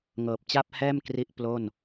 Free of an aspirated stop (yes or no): yes